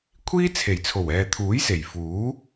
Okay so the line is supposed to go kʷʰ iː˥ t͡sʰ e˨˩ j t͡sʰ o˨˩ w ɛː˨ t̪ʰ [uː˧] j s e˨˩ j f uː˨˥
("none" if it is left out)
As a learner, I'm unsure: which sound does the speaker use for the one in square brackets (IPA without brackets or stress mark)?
uː˨˥